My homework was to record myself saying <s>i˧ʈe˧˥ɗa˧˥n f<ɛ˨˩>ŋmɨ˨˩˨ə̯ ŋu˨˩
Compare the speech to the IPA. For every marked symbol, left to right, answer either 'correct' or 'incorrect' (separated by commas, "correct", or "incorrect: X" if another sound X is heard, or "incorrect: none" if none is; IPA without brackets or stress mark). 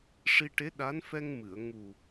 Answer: incorrect: ʂ, incorrect: ɛ˧